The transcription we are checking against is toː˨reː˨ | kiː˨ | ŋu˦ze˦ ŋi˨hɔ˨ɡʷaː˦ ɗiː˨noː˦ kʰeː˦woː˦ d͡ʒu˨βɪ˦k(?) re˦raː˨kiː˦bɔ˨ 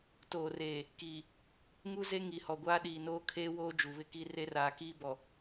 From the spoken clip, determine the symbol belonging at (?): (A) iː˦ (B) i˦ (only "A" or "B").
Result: B